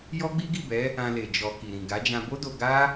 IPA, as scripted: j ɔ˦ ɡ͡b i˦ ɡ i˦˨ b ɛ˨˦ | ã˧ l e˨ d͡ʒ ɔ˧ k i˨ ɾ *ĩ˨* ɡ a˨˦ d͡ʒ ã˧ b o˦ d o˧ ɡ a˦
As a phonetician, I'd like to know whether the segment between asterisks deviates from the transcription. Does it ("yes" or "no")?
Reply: no